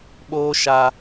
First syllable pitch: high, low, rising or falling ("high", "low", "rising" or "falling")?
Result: high